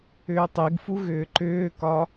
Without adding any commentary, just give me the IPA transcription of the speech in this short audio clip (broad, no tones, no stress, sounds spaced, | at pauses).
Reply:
ʏː tˤ i ɡ f u ɣ ʏː ǃ ʏː k ɒ